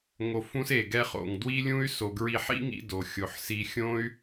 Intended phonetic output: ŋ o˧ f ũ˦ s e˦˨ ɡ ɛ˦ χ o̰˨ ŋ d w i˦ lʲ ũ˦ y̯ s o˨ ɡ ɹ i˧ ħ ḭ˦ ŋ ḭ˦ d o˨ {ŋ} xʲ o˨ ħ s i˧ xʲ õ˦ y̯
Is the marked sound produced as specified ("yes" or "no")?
no